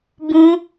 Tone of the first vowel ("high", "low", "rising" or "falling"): high